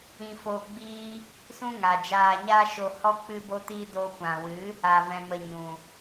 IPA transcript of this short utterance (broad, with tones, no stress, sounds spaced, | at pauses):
ĩ˧ f o˧ ɡ͡b iː˦ | s ũ˦ ŋ a˨ d͡ʒ aː˧ ɲ a˦ ʃ o˧ h ɔ˦ k͡p ɨ˧ b o˧ t iː˧ d o˧ kʷ ã˨ w ɨ˨˦ | a˧ v ɛ̃˧ m ə˧ ɲ ũ˨